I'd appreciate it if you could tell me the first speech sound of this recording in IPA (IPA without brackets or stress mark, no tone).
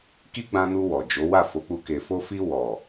k